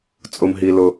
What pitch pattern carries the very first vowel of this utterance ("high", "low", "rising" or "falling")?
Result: high